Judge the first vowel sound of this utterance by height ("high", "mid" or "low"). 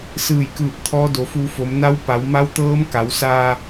high